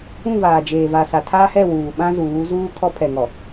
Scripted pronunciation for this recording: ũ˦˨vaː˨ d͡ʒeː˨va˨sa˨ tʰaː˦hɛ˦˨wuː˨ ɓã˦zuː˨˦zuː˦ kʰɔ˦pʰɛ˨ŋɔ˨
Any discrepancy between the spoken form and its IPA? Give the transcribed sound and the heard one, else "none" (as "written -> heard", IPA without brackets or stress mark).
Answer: none